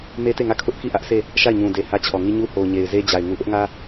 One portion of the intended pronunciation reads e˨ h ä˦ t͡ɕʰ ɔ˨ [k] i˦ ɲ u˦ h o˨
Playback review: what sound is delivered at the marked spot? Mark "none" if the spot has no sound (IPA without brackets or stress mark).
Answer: ŋ